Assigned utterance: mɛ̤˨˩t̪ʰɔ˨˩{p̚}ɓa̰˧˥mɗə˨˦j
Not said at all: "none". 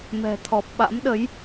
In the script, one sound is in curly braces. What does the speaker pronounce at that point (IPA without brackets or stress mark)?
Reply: p̚